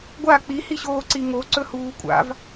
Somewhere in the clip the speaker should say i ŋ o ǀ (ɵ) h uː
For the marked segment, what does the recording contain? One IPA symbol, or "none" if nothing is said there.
ɵ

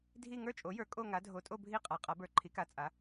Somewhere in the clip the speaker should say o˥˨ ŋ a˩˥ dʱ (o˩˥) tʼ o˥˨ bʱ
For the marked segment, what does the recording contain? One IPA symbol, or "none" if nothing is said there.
o˩˥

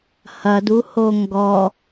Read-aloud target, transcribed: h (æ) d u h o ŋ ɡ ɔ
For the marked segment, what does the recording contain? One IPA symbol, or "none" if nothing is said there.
ɐ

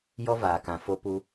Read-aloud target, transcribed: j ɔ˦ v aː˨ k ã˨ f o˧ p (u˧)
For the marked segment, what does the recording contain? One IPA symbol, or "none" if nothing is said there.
u˧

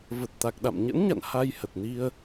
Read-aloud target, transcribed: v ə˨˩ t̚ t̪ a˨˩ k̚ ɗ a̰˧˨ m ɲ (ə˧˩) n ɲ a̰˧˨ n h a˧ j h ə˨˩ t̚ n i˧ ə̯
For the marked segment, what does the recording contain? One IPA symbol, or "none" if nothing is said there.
ə̰˧˥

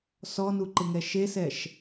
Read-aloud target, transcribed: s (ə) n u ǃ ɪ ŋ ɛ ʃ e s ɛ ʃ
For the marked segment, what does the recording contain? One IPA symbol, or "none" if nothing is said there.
ɔ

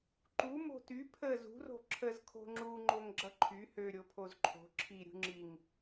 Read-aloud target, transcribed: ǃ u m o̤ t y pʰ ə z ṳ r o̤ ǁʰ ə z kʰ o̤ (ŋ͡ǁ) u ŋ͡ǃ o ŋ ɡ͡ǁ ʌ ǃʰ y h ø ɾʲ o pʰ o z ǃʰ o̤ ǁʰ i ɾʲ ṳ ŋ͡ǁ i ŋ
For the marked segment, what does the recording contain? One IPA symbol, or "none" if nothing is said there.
ŋ͡ǁ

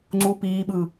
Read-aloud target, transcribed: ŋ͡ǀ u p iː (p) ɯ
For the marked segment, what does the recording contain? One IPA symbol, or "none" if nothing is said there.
ɓ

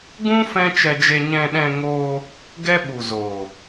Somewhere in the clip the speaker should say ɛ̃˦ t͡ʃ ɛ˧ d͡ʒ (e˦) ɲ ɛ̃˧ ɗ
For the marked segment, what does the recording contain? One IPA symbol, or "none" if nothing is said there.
e˧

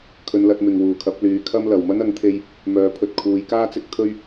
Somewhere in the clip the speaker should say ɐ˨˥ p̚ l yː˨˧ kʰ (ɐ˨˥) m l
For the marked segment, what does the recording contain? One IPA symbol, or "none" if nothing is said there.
ɐ˥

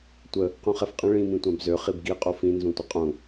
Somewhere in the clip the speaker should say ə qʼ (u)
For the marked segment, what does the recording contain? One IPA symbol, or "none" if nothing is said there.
ũ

